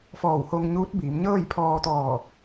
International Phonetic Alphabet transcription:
f ɔː˧˩ w h o˧ ŋ ɲ uː˧˥ t̚ b iː˩˧ m ɲ ɤː˥˨ j pʰ ɔː˧ t̪ ɔː˧˩

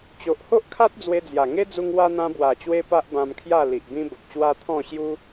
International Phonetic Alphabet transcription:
t͡ɕ o˨ ʔ h o˦ ʔ kʰ a˦ t̚ d͡z w e˧ d͡z j a˨˩ ŋ e˦ d͡z u˧ ŋ w a˧ n̪ ã˧ b w a˨˩ t͡ɕ w e˧ p a˦ ʔ b ã˧ m kʰ j a˥˧ l i˨ ʔ b ĩ˦ b ə˨ p̚ ɕ w a˦ t̪ʰ ɔ̃˥˧ ɕ j u˦

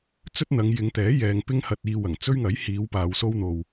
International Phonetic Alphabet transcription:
t͡s ɵ˥ t̚ n̪ ɐ˨˧ ŋ j ɪ˨˧ ŋ t̪ ɛː˨˥ j ɛː˨ ŋ p ɪ˥ ŋ h ɐ˧ t̚ iː˧ w ɐ˨˩ ŋ t͡s ɵ˥ ɥ ŋ ɐ˨˥ j h iː˨˧ w p aː˨˧ w s o˥ w n̪ o˨ w

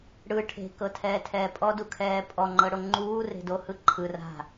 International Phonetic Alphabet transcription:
ɽ ɯ ʈʰ e̤ k ɤ tʰ ɛː tʰ ɛː pʼ ɔ d u kʰ ɛː pʼ ɔ ŋ͡ǃ ɤ ɽ o ŋ͡ǃ uː r e̤ d o h ɯ ǃʰ ɯ r a̤

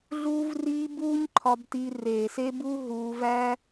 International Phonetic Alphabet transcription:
ɮ uː˧ v r iː˧ b uː˦ ɲ ǃʰ ɒ˧ b t i˧ r eː˨ s e˧ b u˧ ɦ uː˧ v æ˦

